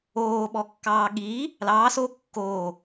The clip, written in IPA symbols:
oː ɓ ɔ kː ɑː ɠ iː | l ɑː s o kː oː

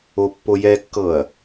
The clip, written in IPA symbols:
o pː o j ɛ kː ɤ ɐ̯

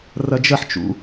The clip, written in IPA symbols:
r ɐ d͡ʒ ɐ ħ t͡ʃ ṵ

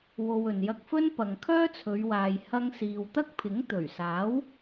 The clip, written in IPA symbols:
w o˧ w ɵ˨ n j ɐ˧ k̚ f ɵ˥ n p ɐ˨ ŋ kʰ œː˥ t͡sʰ ɵ˨˧ ɥ w aː˨ j h ɐ˧ ŋ s iː˨ w t̪ ɐ˥ k̚ pʰ ɪ˨˥ ŋ t̪ ɵ˨˩ ɥ s aː˨˥ w

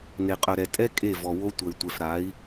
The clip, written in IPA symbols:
n e˨ qʼ œ˨ ɾ ɛ˨ tʼ ɛ˦ kʼ e˦˨ v ɔ˨ w o˦ tʷ ɐ˨ i̯ tʷ ɛ˨ f ɾ a˨˦ i̯

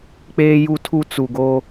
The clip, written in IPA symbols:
k͡p eː˦ j u˦ tʰ u˦ t͡s u˨ ɡ o˦

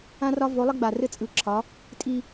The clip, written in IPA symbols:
ã˦ r ɒ˦ v o˨˦ lˠ ə˦ ɡ͡b a˨ r ɘ˦ t͡sʼ ɯ˨˦ ǁʰ ɒ˨˦ | tʼ i˦

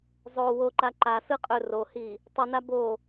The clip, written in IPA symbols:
zˤ o w o ǃ a ǃ a s ɯ qʼ ɵ r o h i | tˤ i n a b o

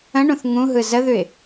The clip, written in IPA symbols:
ə̃ ɳ ũ θ ŋ ũ ɦ ɯ z ə ð ʉ ɪ̯

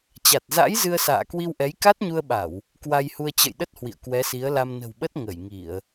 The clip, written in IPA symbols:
t͡ɕ a˨˩ t̚ z a̰˧˥ j z ɨ˧ ə̯ s a̰ː˧˨ k w i˧ w ʔ ɛ˨˦ j k a˦˥ t̚ ɲ u˧ ə̯ ɓ a˧˩˨ w | k w a˧ j h u˧ ə̯ t͡ɕ ə̰˧˨ j ɗ ə˦˥ t̚ h w ḭ˧˨ ə̯ k w ɛ˨˦ s i˨˦ ə̯ l a˧ m n ə̤˨˩ w ɓ ə˦˥ t̚ ŋ ə˧˩ j ŋ i˧˩˨ ə̯

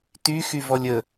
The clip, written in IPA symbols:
t y x y v ɔ lʲ ə

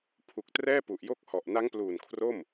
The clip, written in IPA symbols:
pʰ u˨˩ k̚ t r ɛː˥˩ p u˨˩ ʔ j o˥˩ k̚ h ɔ˨˩ ʔ n a˦˥ ŋ p l uː˨˩ n kʰ r o˥˩ m

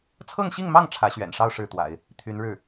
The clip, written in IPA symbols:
t͡sʰ ɤ˥˧ ŋ ɕ i˥˧ ŋ m ɑ˥˩ ŋ ʈ͡ʂʰ ä˧˥ ɕ ɥ ɛ̰˨˩ n ʂ ɑ˥˧ ʊ̯ ʂ ɻ̩˥˩ t̪ w a̰˨˩˦ ɪ̯ | t̪ʰ y˧˥ n ɻ ɻ̩˥˩

